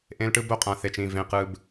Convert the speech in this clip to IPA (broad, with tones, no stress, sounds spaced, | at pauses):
ʔ ẽ˦ l ʈ ɯ˦ b o˦ qʼ ã˨ θ e˨ t͡ʃ ĩ˦˨ v ẽ˨˦ q ɯ˦ b